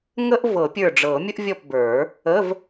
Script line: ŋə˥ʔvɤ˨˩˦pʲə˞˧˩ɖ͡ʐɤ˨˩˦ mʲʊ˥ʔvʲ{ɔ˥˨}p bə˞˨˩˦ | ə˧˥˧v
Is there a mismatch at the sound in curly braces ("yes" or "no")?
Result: no